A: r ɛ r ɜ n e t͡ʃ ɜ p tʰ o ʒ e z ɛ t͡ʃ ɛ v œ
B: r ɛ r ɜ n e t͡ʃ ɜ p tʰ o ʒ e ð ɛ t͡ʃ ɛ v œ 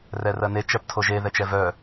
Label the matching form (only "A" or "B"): B